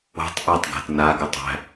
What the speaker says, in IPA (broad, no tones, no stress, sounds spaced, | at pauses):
o̤ tˤ ʔ a tˤ ɡ æ̤ t n a ɡ ɘ tˤ æ̤